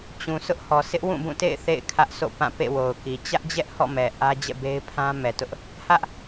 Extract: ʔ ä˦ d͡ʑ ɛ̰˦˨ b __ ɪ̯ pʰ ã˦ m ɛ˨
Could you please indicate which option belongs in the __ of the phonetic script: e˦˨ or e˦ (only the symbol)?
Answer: e˦